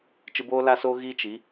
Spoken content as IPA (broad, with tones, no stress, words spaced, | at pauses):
t͡ʃɨ˧boː˦la˦soː˦ ɣi˦t͡ʃi˨˦